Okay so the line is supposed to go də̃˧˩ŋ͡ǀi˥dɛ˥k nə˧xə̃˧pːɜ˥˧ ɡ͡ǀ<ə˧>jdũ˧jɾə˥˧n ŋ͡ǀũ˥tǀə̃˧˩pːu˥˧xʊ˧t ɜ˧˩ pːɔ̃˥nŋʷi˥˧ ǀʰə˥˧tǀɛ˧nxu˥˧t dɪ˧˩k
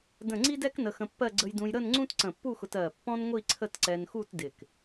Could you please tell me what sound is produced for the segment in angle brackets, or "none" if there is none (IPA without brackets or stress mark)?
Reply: ə˧